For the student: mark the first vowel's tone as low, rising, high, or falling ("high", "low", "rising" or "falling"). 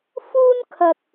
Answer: high